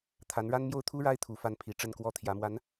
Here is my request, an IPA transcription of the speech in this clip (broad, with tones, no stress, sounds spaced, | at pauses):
t̪ʰ a˧˥ n ɻ a˥ n m j o˥˩ ʊ̯ t̪ʰ u˥ ɻ a˥ ɪ̯ t̪ʰ u˧˥ f a˥˩ n pʰ i˧˥ ʈ͡ʂ ə˥˩ n k w ɔ˥ t̪ʰ j ä˧˥ m w a˧˥ n